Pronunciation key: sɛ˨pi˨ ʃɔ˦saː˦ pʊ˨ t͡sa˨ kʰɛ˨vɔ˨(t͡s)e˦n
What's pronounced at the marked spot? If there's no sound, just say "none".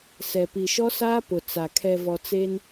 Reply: t͡s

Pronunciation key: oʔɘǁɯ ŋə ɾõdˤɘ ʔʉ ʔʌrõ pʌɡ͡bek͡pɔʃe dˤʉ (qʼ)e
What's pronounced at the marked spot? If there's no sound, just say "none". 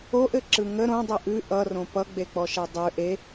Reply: ʔ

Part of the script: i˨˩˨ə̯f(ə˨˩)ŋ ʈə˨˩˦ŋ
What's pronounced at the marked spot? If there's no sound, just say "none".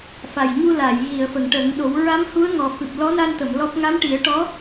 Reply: ə˨˩˨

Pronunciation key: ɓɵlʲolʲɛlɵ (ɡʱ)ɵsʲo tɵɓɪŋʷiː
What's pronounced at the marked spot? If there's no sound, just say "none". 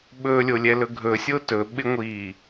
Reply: ɡʱ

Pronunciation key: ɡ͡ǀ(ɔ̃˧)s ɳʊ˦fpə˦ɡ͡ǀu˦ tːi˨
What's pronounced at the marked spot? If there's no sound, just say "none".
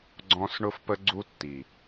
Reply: ɔ̃˧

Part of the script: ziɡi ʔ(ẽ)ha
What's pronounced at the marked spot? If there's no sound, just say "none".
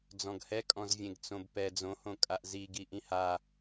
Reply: ĩ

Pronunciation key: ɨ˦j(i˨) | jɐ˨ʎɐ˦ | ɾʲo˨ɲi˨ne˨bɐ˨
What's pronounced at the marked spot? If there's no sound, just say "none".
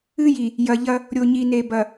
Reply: i˨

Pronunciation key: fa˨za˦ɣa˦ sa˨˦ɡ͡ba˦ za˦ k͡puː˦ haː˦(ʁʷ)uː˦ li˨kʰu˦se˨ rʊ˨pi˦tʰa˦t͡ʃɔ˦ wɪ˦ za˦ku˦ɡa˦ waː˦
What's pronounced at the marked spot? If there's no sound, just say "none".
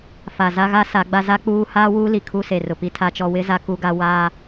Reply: w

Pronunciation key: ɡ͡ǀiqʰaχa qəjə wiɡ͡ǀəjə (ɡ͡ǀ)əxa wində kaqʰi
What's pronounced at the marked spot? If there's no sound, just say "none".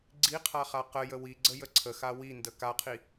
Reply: ǀʰ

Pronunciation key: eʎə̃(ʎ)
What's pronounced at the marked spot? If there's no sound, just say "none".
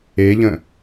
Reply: none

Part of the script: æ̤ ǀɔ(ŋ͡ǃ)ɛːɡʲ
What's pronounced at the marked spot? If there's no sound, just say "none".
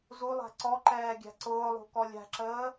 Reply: ǃ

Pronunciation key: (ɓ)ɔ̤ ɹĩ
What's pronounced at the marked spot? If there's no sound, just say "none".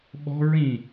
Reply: ɓ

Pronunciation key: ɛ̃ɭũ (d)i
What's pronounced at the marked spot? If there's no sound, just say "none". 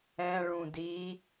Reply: d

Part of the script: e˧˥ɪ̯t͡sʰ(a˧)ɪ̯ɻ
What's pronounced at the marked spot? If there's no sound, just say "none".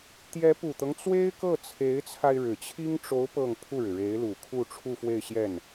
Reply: a˧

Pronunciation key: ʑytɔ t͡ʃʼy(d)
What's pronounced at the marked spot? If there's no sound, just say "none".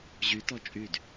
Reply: d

